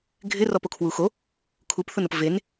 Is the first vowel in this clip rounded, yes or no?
no